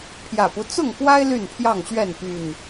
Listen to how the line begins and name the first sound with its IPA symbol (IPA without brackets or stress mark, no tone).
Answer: pʰ